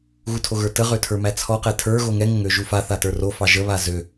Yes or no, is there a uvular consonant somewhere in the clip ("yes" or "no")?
yes